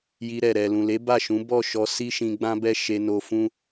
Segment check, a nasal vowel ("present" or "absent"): present